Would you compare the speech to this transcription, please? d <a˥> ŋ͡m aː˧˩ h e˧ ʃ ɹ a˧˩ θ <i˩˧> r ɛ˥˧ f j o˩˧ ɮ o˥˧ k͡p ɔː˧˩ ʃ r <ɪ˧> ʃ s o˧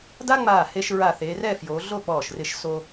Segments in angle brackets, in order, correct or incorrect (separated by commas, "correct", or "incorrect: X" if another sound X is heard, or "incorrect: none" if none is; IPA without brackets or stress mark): correct, incorrect: e˩˧, correct